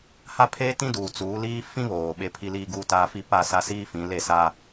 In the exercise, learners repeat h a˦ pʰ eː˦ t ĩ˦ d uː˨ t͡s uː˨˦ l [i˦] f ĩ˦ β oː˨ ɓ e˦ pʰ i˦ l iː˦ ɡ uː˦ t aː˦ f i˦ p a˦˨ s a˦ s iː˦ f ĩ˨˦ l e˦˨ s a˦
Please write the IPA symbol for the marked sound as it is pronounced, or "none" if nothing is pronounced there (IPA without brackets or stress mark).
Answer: iː˦